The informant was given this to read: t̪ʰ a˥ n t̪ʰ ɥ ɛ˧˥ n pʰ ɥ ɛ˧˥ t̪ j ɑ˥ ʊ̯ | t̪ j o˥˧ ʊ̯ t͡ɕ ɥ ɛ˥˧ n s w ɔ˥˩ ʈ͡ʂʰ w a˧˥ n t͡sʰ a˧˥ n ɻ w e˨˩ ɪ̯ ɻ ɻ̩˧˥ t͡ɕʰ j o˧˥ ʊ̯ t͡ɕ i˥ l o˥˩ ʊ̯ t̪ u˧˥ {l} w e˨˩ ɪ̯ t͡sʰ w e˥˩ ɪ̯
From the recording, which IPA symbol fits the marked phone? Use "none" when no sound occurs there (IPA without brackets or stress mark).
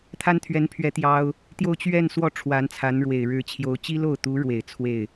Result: ɻ